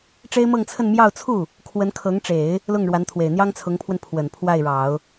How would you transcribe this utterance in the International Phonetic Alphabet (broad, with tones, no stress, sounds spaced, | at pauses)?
ʈ͡ʂ e˥ ɪ̯ m ɤ˥˧ ŋ t͡sʰ ə˥˧ n m j ɑ˥˧ ʊ̯ t͡sʰ u˥˩ | kʰ w ə˧˥ n kʰ ɤ˧˥ ŋ ʈ͡ʂ e˨˩˦ ɪ̯ | l ʊ˥˩ ŋ ɻ w a˧˥ n t̪ʰ w e˨˩ ɪ̯ n̪ j ɑ˥ ŋ t͡sʰ ʊ˧˥ ŋ pʰ w ə˧ n pʰ w ə˨˩ n pʰ w a˥˩ ɪ̯ ɻ ɑ˨˩˦ ʊ̯